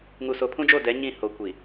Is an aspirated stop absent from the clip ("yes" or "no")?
no